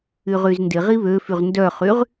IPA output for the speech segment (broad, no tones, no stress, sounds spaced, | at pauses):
y ʁ y z n d ɪ ʁ i β ø f y ʁ n d œ χ y ʁ